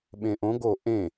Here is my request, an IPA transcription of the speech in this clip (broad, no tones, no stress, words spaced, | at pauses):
ɓẽʔõ ɡo ʔẽ